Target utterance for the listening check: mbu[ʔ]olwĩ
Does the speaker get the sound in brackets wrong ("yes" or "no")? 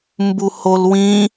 yes